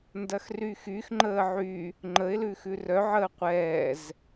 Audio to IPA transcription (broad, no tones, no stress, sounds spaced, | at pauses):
n d ɐ x r y x y x ŋ͡ǃ əː ʕ y | ŋ͡ǃ ə ɪ̯ l ʉ x ʉ r œ ʕ əː qʷ ɛː z